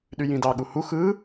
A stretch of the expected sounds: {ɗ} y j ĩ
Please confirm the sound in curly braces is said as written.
yes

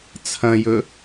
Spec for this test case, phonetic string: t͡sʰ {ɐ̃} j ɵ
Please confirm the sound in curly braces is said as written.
yes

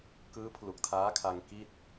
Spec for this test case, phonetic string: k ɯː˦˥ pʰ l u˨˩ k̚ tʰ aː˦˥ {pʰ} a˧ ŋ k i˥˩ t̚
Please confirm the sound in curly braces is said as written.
no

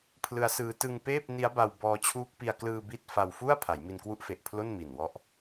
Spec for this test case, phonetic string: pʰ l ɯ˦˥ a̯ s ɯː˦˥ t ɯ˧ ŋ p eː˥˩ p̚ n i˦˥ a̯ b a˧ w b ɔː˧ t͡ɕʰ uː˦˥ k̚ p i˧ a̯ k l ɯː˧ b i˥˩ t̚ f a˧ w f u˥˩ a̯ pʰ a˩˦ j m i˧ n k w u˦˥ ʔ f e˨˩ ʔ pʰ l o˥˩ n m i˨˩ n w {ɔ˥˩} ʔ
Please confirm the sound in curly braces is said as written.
no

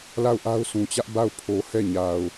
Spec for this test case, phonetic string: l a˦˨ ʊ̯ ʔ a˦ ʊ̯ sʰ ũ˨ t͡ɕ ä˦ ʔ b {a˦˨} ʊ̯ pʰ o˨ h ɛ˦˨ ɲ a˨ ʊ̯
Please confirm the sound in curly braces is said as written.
yes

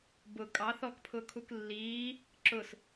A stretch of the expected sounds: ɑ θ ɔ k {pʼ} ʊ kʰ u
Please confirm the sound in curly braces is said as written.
no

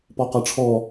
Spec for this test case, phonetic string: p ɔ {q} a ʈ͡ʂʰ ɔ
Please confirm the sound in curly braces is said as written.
yes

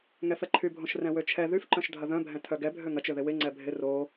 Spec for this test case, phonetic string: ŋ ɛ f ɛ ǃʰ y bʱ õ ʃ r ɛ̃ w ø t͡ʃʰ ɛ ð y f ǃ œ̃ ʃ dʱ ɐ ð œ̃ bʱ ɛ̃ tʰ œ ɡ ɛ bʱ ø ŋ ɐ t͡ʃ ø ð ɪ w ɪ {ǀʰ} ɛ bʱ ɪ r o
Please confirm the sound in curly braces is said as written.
no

